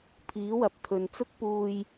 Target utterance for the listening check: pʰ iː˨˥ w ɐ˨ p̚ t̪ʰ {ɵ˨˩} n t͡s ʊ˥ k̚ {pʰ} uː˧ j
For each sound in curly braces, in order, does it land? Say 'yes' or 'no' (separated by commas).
no, no